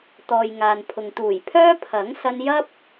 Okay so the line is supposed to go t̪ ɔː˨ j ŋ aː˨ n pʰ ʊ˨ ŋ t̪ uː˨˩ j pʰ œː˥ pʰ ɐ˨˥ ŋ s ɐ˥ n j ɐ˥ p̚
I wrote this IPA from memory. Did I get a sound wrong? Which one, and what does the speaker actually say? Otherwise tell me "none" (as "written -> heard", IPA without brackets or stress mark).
none